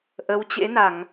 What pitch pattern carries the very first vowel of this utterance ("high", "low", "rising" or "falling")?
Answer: rising